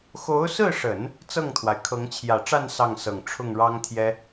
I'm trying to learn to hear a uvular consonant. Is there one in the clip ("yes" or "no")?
no